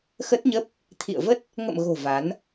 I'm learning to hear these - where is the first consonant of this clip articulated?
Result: velum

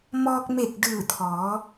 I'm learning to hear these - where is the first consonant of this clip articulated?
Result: lips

